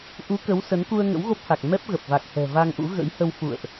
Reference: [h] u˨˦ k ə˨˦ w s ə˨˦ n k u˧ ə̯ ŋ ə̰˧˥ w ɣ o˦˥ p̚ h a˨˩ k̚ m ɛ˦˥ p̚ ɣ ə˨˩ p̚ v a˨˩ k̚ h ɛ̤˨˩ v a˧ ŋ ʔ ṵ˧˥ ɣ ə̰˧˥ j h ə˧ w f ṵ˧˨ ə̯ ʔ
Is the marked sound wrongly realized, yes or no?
yes